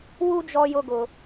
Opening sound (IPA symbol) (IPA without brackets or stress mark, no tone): w